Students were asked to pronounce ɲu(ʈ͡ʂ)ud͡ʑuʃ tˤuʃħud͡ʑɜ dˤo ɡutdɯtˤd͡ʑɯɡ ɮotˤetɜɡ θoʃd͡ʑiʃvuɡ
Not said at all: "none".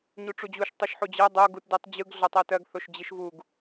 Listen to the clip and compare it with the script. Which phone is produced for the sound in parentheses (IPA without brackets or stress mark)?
ʈ͡ʂ